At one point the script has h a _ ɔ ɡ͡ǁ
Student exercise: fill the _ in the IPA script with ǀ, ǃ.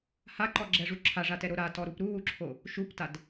ǃ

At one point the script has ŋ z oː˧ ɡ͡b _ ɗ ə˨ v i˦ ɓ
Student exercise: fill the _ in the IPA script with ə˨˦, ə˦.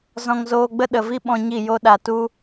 ə˦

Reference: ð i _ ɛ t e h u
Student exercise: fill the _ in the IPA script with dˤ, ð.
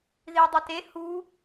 dˤ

